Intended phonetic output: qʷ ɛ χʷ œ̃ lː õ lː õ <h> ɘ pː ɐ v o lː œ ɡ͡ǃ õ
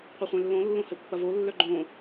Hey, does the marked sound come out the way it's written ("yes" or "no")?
yes